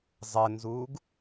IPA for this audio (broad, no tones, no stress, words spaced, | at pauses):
zˤɘnzuːɡ